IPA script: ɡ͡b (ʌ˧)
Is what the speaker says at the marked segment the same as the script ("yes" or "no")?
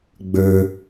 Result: no